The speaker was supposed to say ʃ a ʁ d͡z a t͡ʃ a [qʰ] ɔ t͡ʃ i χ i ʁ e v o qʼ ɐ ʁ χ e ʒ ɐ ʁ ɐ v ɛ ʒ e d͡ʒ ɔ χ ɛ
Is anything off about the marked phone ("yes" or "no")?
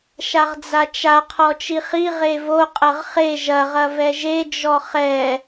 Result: no